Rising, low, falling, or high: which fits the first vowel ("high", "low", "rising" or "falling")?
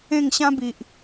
falling